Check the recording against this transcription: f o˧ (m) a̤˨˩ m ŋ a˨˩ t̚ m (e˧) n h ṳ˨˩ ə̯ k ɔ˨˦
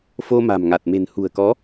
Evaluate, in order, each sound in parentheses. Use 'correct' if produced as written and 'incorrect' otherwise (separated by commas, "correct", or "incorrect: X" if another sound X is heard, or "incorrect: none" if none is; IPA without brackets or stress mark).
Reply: correct, incorrect: e̤˨˩